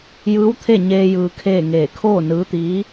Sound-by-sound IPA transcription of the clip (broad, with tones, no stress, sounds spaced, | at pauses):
j ɯː˧˥ w t̪ʰ e˥˨ ɲ eː˧ j ɯː˧ kʰ eː˥˨ ŋ eː˧˩ kʰ oː˥˨ n ɯː˧˥ t̪ iː˧˥